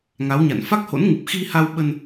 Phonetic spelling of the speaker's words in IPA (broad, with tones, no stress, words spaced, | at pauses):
ŋa˨˦wɲa̰˧˨n fa˦˥k̚ho̰˧˥nŋɨ˨˩p̚ xi˧ha˧w ɓə˧n